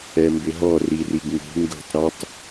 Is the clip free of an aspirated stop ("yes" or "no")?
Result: yes